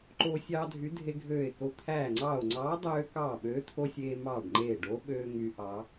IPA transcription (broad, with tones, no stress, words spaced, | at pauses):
ǃoː˧sʲɑː˧dʱy˨˥ dʱe˧ɡʱøː˧˩e̯ko˧˩ t̪ʰæː˧˩ŋ͡ǀɑː˧˩o̯ŋ͡ǀɑː˨˥dˤøː˧ kɑː˧˩ɓøː˨˥t̪ʰo˧ sʲeː˧mɑː˧˩ɖŋ͡ǃeː˧˩ɖo˨˥ ɓøː˧ ŋy˨˥ʔɑ˨˥